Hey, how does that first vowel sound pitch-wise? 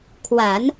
low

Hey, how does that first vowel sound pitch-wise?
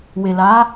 low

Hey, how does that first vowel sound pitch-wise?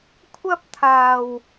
high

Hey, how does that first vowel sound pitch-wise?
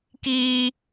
high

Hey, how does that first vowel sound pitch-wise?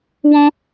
high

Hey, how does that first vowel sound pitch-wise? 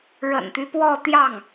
low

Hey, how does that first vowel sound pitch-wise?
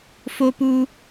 high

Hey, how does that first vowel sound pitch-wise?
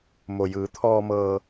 low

